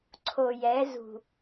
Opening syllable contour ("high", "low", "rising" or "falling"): low